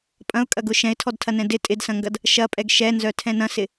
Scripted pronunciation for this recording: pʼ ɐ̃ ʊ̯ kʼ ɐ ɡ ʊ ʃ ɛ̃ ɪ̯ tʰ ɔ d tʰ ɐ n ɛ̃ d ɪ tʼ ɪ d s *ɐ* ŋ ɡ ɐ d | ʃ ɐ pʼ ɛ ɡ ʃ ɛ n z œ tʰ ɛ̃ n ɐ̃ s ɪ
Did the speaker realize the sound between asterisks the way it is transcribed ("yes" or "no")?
no